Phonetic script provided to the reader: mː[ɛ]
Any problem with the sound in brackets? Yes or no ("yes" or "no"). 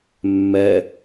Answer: no